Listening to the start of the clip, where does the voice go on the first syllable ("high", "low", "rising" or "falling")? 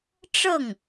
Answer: falling